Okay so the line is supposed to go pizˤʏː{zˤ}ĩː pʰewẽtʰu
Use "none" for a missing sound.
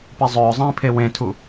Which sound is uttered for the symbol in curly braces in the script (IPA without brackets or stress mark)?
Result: zˤ